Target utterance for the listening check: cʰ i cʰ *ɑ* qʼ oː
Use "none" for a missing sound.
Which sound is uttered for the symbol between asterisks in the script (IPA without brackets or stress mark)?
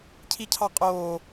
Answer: ɑ